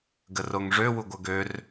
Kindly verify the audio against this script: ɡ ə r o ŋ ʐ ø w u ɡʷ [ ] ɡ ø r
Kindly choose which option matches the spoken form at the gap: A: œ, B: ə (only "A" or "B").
A